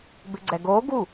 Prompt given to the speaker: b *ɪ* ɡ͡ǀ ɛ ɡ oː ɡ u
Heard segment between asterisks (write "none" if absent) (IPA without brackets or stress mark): ɪ